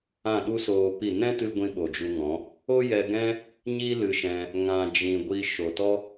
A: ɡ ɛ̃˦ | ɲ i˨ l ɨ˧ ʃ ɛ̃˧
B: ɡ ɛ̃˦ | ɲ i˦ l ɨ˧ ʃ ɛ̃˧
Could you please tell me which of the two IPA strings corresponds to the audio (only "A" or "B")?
B